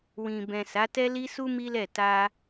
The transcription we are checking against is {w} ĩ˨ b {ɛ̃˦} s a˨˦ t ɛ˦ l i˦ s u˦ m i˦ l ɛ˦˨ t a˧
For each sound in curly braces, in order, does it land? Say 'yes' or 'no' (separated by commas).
yes, no